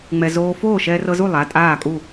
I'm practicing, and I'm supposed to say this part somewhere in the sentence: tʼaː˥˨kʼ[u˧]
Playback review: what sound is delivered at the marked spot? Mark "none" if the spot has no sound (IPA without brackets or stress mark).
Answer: u˥˨